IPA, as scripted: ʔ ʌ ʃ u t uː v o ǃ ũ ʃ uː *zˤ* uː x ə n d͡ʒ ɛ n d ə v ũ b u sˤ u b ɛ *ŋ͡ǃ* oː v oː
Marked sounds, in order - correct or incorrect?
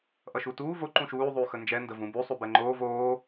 incorrect: ðˤ, correct

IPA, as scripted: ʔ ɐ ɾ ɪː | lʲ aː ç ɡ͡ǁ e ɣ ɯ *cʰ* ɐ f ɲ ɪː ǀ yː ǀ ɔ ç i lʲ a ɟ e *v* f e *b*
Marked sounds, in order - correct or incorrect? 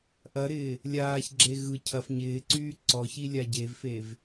correct, correct, incorrect: v

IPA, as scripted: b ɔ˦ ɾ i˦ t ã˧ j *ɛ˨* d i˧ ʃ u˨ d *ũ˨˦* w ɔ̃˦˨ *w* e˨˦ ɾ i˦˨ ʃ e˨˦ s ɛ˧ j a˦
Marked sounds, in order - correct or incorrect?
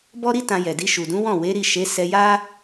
correct, correct, correct

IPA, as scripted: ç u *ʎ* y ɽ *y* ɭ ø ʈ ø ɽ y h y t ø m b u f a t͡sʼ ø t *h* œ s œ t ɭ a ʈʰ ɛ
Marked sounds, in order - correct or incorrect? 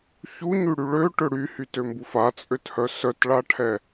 incorrect: ɲ, correct, correct

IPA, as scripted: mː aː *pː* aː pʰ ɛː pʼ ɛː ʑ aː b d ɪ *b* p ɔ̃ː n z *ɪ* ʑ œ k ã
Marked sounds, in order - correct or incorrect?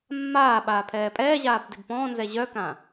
incorrect: ɓ, correct, incorrect: ɛ

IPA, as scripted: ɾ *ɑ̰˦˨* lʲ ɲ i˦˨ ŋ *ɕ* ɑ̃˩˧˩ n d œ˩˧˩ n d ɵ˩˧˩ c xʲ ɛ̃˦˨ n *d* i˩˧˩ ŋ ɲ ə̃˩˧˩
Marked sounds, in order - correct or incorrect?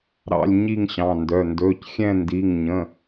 correct, correct, correct

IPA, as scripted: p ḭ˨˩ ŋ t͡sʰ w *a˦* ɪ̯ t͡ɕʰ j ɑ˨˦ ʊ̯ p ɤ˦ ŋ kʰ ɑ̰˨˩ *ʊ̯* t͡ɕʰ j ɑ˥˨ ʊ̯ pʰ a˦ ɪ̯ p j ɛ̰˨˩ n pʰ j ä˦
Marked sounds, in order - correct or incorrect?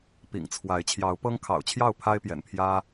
incorrect: a˨˦, correct

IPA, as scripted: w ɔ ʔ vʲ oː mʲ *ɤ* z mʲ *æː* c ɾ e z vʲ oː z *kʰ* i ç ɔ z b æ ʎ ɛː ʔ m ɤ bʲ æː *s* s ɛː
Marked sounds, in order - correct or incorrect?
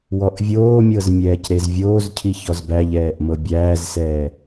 correct, incorrect: ɛː, incorrect: cʰ, incorrect: z

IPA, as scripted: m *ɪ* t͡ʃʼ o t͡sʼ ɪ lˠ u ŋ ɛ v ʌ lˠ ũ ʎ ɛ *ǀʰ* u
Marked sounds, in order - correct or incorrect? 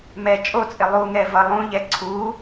incorrect: ɛ, correct

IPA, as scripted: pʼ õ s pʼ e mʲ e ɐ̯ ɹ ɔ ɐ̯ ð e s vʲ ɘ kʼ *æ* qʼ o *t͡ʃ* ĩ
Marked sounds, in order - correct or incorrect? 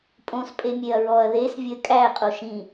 correct, incorrect: ʃ

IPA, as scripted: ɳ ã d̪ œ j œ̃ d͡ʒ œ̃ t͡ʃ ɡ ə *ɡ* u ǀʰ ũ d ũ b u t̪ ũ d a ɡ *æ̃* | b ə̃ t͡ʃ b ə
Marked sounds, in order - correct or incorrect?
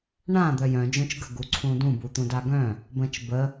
correct, incorrect: œ̃

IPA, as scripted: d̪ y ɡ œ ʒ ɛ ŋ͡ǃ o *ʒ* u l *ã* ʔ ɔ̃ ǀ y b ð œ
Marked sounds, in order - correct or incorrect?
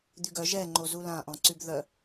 incorrect: z, correct

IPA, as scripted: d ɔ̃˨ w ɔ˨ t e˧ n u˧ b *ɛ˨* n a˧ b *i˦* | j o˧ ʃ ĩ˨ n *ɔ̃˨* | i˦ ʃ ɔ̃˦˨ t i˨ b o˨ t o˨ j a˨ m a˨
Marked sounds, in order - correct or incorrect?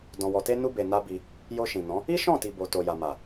incorrect: e˨, incorrect: i˧, incorrect: ɔ̃˨˦

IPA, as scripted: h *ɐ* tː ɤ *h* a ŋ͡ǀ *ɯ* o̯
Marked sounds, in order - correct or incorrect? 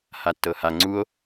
incorrect: a, correct, incorrect: u

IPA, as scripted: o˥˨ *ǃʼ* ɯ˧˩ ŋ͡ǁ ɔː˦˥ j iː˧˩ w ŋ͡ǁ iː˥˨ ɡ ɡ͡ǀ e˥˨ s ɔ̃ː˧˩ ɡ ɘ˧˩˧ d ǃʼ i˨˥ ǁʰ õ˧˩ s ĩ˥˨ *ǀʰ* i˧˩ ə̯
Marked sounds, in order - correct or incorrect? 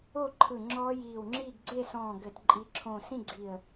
incorrect: ǃʰ, incorrect: ɡ͡ǀ

